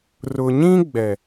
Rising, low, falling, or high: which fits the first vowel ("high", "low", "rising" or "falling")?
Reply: low